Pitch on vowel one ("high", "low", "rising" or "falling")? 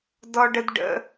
high